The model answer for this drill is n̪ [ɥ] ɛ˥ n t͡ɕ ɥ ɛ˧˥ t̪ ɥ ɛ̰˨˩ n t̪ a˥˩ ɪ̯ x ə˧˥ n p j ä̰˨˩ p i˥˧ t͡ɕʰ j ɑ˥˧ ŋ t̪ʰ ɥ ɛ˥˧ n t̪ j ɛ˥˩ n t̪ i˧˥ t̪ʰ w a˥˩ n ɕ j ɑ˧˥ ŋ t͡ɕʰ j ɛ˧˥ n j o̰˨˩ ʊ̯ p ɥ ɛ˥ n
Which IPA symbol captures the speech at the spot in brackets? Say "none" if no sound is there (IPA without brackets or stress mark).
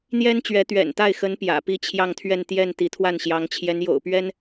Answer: j